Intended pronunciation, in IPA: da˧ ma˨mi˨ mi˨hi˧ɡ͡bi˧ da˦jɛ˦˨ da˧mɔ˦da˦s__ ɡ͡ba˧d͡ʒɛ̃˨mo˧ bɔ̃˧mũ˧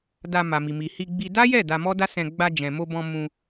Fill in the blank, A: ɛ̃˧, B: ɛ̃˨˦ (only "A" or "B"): A